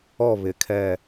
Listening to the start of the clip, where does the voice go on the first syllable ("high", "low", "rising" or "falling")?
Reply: falling